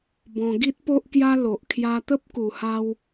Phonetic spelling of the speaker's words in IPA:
b ɔ̃˧ ɡ i˦ t̚ p o˦ ʔ k j a˦ l o˨ ʔ kʰ j a˧ t̪ ə˦ p̚ k u˨˩ h a˧ w

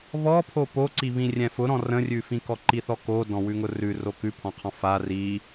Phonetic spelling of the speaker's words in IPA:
β ɔ pʰ o p o ǀ i β ĩ rʲ ɛ̃ f ʊ ɾ ɔ̃ r ə̃ rʲ ʉ f ĩ k ɔ ǃ i θ ɔ k o d ɔ̃ w ʉ ŋ ʊ r ʉ r o k ʉ pʰ ɔ̃ qʰ ɔ̃ f a r i

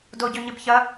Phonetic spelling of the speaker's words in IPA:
d o ɟ ø ɲ ɪ b ç ɐ

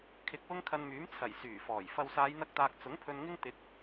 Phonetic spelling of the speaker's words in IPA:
kʰ ɪ˨ k̚ w ʊ˥ ŋ kʰ ɐ˧ n m yː˨˥ m t͡sʰ ɐ˨˩ j s yː˨˩ f ɔː˨˩ j f ɐ˨ w s aː˨˧ j n̪ ɐ˧ k̚ t̪ aː˨ k̚ t͡s ʊ˨˥ ŋ pʰ ɵ˧ n ŋ ɪ˥ ŋ t̪ ɪ˨˥ k̚

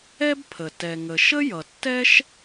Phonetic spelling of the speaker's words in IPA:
ɛ˥ b pʰ ə˩ t ɛ˩ ŋ ə˩ ʃ ə˥ j ʌ˩ tː ɛ˥ ʃ

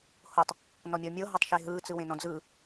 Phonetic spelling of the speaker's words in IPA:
h o tˤ | n ɔ mʲ ɔ mʲ ɤ ɦ o tˤ ʃ e ɦ ɯ t͡s ɯ w ẽ n ɔ̃ d͡z ɯ

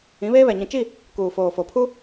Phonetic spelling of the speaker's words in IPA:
ĩ˨˦ β eː˦ β ɛ˨ ɲ ĩ˨ t͡ʃ i˦˨ | k uː˨ f oː˨ f o˨ pʰ u˦

